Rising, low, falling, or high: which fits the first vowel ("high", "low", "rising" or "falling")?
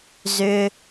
low